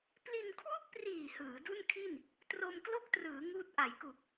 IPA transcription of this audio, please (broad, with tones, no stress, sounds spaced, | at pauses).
p l i˧ n kʰ w u˥˩ k̚ p r iː˨˩ h ɯː˩˦ d u˥˩ n kʰ i˥˩ n | t r o˧ m k l o˥˩ k̚ t r ɯː˩˦ ŋ uː˦˥ t̚ ʔ a˩˦ j k u˨˩ k̚